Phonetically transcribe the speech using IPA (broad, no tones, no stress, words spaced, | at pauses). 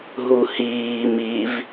ɦuhiː miv